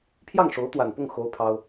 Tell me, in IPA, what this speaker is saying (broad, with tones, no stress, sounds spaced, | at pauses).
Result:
pʰ j ɑ˥˩ ŋ ʂ o˧˥ ʊ̯ t̪ w a˨˩ n p ʊ˥˩ ŋ x o˥ ʊ̯ pʰ ɑ˥ ʊ̯